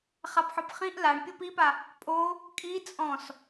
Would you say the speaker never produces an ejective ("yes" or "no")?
no